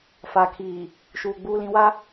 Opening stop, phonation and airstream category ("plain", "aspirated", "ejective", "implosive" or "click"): aspirated